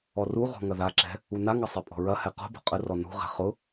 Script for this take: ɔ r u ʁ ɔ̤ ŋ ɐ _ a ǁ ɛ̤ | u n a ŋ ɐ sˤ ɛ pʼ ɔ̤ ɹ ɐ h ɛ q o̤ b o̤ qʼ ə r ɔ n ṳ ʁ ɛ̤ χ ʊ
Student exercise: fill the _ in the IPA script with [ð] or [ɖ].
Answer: ð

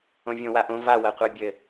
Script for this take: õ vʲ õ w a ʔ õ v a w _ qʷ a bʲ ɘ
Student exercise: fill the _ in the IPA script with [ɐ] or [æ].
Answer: ɐ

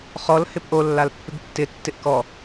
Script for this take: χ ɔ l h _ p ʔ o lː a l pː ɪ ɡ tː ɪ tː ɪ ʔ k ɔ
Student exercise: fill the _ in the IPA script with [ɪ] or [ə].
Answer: ɪ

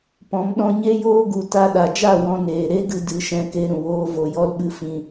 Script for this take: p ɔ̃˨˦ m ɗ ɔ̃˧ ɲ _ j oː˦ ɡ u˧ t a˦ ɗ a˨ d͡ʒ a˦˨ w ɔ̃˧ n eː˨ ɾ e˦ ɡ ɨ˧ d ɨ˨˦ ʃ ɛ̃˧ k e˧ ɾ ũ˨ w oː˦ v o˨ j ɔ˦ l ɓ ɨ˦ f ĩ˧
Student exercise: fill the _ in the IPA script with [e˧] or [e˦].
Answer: e˦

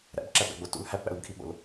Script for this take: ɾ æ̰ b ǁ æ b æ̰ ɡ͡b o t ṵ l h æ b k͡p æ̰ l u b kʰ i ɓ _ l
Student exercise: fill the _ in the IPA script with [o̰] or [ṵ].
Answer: o̰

